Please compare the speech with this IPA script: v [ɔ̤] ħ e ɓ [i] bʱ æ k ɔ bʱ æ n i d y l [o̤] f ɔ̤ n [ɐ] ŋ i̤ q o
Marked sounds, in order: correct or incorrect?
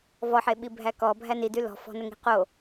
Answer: incorrect: ɔ, correct, incorrect: ɔ̤, incorrect: ə

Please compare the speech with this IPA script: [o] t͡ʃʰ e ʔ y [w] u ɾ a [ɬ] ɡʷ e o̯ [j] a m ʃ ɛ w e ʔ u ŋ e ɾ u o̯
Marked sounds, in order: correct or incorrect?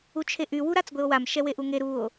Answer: incorrect: u, correct, incorrect: t͡s, incorrect: w

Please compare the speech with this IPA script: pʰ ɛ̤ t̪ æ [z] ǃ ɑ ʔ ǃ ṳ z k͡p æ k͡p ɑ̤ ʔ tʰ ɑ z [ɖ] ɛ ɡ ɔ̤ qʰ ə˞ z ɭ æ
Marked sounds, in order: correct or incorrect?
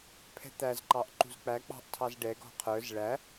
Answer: correct, correct

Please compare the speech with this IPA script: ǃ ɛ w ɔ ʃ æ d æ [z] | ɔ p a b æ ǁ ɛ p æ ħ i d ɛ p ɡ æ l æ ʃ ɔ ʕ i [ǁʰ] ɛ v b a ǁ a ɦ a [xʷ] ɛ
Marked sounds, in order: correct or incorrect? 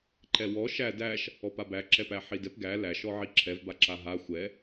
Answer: incorrect: ʃ, correct, correct

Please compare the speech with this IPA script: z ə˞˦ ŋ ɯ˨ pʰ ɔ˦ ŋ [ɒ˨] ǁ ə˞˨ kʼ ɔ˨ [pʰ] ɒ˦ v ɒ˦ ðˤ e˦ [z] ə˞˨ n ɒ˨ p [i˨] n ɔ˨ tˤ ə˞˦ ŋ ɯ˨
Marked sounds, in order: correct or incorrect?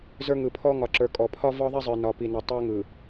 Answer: correct, correct, incorrect: zˤ, correct

